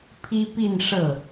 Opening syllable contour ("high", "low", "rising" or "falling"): high